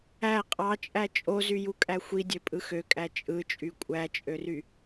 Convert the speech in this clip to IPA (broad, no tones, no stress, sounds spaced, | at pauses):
æ qʼ ɑ t͡ʃʼ æ t͡ʃʼ o z y j u kʼ æ xʷ i dʲ ø pʼ ɯ x ø kʼ æ t͡ʃʼ ɯ t͡ʃʼ y kʷʼ æ t͡ʃʼ ø r y